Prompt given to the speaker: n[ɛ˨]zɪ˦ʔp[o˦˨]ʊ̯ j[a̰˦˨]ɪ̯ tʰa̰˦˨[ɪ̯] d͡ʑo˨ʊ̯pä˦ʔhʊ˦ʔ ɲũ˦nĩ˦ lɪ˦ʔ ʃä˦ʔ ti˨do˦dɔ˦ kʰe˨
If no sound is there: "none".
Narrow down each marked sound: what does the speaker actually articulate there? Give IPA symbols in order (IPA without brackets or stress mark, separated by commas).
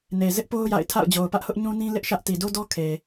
e˨, o˦, a̰˦˨, ʊ̯